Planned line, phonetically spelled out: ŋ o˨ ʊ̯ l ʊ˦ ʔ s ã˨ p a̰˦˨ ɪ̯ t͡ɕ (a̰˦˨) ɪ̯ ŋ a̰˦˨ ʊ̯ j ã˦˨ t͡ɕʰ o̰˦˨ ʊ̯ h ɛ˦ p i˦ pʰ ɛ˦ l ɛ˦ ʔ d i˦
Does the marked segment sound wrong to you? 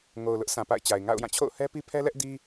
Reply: yes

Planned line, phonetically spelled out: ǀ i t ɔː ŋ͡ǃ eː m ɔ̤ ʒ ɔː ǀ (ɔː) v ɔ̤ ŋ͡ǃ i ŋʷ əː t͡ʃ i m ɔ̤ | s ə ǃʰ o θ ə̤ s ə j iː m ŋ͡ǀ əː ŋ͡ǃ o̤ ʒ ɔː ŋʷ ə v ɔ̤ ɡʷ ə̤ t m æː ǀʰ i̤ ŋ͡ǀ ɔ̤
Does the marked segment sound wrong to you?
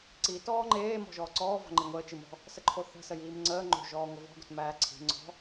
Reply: no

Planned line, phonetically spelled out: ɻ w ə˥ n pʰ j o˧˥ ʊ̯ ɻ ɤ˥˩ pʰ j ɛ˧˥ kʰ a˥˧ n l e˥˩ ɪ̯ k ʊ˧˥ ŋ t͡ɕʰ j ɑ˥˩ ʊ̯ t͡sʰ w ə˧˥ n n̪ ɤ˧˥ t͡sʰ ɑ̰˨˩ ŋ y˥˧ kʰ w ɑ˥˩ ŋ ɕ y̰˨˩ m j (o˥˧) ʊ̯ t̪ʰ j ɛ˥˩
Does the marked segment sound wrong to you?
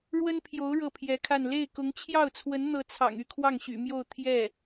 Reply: no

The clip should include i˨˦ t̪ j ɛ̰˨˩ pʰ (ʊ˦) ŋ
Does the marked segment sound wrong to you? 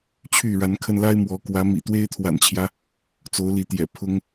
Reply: no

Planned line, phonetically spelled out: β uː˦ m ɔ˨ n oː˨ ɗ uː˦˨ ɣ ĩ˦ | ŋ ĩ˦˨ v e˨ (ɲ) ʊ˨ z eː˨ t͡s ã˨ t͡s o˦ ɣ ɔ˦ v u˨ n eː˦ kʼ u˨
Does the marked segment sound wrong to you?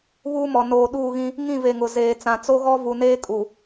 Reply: yes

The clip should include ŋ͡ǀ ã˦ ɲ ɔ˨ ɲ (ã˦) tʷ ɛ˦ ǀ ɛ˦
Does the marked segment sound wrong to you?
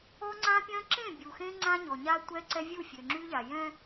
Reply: yes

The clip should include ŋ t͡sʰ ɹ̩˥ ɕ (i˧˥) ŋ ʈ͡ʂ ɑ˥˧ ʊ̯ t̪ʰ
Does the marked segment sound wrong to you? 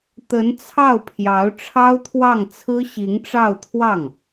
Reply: no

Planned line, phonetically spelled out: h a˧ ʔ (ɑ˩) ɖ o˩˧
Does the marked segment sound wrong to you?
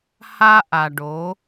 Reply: yes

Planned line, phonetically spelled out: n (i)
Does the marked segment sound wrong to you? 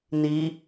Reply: no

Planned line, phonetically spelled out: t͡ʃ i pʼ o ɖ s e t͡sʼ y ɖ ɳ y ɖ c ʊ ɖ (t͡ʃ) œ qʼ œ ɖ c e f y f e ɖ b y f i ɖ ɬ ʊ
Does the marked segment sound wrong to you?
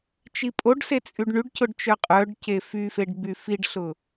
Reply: no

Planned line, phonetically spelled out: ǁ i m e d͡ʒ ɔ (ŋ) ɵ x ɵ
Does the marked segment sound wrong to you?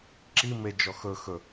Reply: yes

